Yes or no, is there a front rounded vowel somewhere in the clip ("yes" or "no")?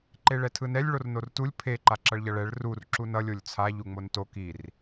no